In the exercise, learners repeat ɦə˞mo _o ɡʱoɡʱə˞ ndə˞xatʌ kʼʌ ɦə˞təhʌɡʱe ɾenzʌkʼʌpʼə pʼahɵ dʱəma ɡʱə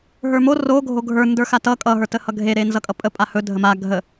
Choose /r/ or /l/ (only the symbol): r